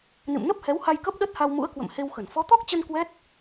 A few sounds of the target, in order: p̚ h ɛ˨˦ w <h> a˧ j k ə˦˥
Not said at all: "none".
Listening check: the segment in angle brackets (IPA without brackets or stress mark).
h